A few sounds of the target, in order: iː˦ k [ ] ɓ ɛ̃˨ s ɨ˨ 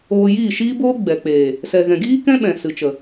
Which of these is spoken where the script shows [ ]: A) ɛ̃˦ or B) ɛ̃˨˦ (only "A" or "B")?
A